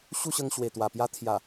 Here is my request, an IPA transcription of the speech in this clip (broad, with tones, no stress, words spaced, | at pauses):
ɕu˥˧ɕə˧ŋ ɕwe˨˩t̪wa˨˩pja˦ t̪ʰja˨˩